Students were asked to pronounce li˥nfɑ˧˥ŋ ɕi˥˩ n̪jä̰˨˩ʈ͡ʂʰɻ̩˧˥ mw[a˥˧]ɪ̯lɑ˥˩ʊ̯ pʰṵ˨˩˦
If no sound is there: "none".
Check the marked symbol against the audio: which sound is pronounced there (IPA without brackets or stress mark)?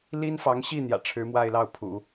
a˥˧